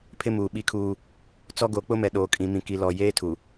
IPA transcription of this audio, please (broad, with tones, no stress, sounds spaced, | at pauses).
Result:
pʰ ɪ˦ m uː˨ ɓ i˦ kʰ uː˦ | t͡s ɔ˦ ɡ o˨˦ k͡p ʊ˦ m ɛ˨ ɗ oː˨ kʼ ĩ˨ m ĩ˨ k i˨ l ɔ˨ j eː˦ tʰ u˨